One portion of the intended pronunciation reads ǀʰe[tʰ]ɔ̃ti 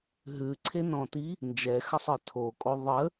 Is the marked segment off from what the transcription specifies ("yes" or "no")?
yes